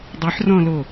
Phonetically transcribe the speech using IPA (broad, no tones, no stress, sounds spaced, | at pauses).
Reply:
dˤ u ħ r ɔ̃ l o